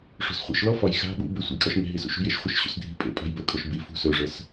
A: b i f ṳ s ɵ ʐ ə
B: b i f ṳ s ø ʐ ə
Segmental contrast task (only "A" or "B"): A